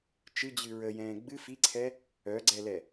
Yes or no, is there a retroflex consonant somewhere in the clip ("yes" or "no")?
no